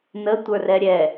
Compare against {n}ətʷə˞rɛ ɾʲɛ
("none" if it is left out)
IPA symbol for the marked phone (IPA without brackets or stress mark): n